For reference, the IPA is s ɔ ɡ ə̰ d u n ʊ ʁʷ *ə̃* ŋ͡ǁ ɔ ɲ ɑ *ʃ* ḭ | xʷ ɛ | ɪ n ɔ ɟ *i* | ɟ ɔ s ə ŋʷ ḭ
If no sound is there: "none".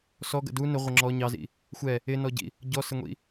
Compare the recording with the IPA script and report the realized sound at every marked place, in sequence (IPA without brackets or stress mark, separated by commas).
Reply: ə, z, ḭ